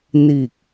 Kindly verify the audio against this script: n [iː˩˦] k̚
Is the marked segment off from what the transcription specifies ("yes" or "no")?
yes